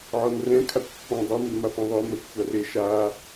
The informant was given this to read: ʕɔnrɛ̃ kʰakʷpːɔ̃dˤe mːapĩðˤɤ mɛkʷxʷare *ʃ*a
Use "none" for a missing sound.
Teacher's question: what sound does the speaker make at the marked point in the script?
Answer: ʃ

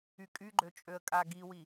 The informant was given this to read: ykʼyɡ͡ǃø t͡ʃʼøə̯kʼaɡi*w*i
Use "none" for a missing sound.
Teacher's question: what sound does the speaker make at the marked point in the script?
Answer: w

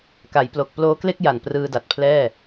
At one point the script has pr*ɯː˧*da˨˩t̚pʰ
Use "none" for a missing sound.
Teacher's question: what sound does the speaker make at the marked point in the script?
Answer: ɯː˧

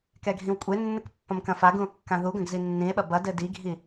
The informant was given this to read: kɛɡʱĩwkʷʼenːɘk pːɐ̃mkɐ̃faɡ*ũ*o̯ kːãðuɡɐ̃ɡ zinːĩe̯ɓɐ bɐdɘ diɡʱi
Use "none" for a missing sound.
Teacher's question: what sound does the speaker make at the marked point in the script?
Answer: ũ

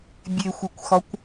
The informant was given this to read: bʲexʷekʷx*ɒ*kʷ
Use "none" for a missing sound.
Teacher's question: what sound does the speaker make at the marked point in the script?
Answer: ɒ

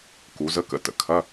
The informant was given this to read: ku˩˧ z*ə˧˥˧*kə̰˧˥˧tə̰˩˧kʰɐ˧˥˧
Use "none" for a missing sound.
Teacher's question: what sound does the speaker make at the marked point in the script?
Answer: ə˧˥˧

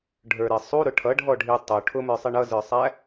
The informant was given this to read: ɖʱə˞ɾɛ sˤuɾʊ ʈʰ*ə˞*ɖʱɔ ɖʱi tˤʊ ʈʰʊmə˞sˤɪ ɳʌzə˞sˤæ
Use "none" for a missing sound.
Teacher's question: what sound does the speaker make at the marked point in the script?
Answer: ʌ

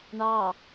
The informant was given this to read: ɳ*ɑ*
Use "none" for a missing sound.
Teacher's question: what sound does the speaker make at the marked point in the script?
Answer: ɑ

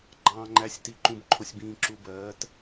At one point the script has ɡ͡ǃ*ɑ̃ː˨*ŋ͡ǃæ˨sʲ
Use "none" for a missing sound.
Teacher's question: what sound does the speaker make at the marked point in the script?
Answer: ɑ̃ː˨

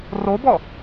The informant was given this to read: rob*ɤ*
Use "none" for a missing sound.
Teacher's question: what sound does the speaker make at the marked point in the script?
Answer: ɔ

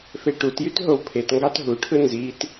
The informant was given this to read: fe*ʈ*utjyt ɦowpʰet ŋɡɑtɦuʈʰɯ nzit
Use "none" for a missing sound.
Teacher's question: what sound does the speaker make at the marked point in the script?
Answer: ʈ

